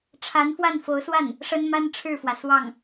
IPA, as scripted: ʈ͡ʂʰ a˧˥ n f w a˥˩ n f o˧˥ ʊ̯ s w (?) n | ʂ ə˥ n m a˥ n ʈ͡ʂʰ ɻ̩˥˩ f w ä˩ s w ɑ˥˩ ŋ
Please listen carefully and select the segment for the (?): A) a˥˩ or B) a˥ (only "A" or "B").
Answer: A